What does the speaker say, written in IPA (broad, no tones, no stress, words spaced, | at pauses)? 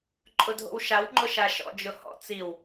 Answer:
ǃʼʊdʱo̰wʃaw ŋ͡ǃʊʃaʃɔ̰ d͡ʒʊhɔ̰ t͡siw